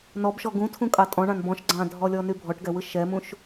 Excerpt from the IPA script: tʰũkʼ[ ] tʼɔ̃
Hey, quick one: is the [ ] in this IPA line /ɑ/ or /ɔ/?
ɑ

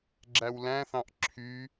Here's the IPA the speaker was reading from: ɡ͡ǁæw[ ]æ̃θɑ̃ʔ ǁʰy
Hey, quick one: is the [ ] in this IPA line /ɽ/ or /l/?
l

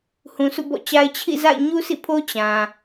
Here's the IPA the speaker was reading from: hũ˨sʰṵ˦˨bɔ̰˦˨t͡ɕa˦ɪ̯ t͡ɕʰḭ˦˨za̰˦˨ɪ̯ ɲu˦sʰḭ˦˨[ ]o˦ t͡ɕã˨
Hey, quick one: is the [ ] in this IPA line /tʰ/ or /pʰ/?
pʰ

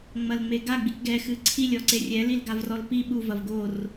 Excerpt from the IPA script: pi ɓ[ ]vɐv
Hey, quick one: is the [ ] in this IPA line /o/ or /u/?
u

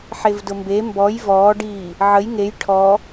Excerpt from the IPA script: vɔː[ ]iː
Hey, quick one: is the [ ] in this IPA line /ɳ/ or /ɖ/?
ɖ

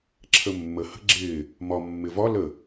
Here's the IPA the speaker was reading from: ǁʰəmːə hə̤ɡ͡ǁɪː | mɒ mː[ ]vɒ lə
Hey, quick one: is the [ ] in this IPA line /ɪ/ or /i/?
ɪ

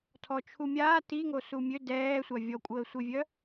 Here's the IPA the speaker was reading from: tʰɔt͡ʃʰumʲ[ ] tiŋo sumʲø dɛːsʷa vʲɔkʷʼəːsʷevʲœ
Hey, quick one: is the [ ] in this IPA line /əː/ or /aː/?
aː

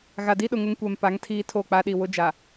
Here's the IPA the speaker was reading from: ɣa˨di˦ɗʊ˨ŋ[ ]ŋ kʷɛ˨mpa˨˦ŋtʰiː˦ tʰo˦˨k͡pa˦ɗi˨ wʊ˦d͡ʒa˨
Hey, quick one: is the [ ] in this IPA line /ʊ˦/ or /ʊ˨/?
ʊ˦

